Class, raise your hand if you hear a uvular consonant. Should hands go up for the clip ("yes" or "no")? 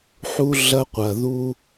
yes